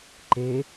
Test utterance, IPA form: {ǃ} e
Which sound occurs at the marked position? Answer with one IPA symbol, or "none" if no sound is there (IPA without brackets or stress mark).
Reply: ǃ